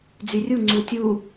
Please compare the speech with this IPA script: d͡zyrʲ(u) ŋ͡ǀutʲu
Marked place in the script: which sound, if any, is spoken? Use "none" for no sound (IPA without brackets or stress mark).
u